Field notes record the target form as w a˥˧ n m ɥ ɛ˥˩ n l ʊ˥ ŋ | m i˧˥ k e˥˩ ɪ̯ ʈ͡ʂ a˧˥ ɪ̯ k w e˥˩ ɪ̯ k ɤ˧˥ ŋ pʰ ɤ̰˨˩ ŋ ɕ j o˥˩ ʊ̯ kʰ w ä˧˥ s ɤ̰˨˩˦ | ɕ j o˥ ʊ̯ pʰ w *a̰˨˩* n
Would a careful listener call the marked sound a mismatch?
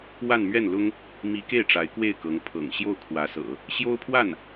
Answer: yes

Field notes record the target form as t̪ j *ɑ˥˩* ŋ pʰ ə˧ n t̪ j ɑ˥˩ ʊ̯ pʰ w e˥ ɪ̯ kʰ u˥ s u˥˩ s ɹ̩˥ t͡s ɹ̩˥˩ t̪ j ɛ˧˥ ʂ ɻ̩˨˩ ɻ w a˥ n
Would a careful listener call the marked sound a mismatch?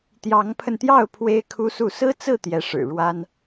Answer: yes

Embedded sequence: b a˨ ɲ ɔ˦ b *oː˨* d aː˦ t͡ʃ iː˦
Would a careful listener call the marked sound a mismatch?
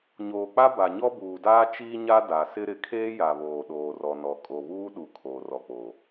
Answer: yes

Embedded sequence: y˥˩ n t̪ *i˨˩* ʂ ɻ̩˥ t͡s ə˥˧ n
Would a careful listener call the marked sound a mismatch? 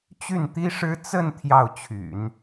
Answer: yes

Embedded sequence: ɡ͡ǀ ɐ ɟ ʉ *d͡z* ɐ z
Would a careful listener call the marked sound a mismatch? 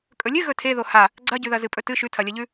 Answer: yes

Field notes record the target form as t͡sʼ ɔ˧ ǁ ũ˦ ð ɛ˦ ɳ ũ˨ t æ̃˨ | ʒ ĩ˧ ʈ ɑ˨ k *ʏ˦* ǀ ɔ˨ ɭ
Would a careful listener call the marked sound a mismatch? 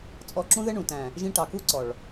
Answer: yes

